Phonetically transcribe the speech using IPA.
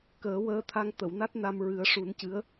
kəː˨˩˦wəː˧˥t̪ʰa˧ŋ t̪ə˨˩˨wna˦˥t̚ na˧mɹɨ˨˩˦ə̯ʂu˨˩˦ncɨ˧˥ə̯

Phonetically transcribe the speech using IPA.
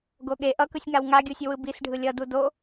ɡoɠe ʔʌkɯsʲŋaw ŋaɡʲusʲɯwɯ bis ɖʱɯlʲʌ dudo

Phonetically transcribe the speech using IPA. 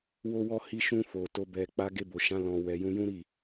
wo˧wɔ˧hi˧ʃũ˧ fo˨ to˨bɛ˨ k͡pa˧ɡe˧bo˨ʃã˨˦ lɔ̃˧wɛ˧ jũ˧jũ˦ɾi˦˨

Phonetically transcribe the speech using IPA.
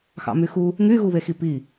xɑ̰myxu | ŋyɣuβexi pi

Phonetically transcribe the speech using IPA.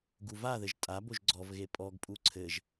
ɡuvaðɘʒ tʼaboʒ ɡ͡ǀɔvɣe pʼɔɡpʼu ǀʰɘʒ

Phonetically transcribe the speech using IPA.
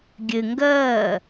ɡʲɨ ŋɡəː

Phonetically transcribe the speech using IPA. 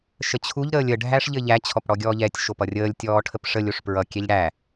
ʃət͡ɕʰuʎ ɾəːlʲə ɖʱæʂʎɘʎæ t͡ɕʰɔpɽɔɡʲɔːʎɛtʲ ʃopʌrʲəːlʲ tʲɔːʈʰəpʂəlʲ oʂpɹʌ kʲɛʎɽæ

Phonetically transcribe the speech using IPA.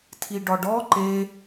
tʰiɖɒɖɔ ǃe

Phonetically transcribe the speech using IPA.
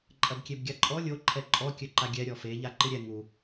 ǃʼɐbkʲebɡʲaǃʼɔ lʲo ǃʰɛǃʼɔ kʲɘǃaɡʲɛ ɾʲɔfe ʎaǃɨɾʲɛ ŋu

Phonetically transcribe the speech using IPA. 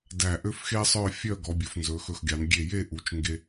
dæ˧˩ʔø˥fxe˥ sˤœ˥˧ fʲœ˥˧ɡɔ˩˧ bʲɵ˩˧fnzɵ˩˧xɵ˧˩xɡʲɑ˩˧n ɡʲe˧˩je˥˧ʔu˩˧t͡ʃ ŋɡe˧

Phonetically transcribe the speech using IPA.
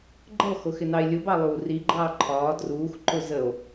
ɡ͡ǃəlˠxʊxɪnɑe̯ lʲʊbɑlˠuː riɡ͡ǃɑː ǃʰɒː druːxǃʊ zəo̯

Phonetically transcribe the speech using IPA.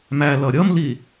mæ lʌɾʲʌmli

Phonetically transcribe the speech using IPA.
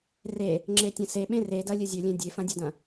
re | ŋ͡ǁetʲɐ̃seɓẽ redɐ lʲɨzʲɵlʲẽ dʲefɐ̃dʲɐdɐ̃

